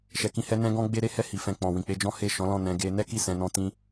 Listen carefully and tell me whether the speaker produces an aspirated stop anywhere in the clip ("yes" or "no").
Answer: no